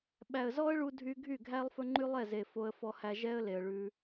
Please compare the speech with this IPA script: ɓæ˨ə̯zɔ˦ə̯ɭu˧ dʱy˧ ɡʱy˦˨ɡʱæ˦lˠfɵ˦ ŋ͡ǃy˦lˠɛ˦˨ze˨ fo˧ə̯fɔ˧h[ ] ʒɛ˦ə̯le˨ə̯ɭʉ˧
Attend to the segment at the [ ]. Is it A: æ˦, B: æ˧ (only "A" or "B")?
B